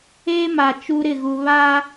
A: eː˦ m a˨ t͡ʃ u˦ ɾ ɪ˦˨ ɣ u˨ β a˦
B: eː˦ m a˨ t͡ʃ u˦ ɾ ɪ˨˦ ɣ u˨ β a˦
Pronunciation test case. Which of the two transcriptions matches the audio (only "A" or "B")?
A